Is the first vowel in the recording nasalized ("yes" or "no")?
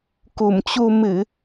no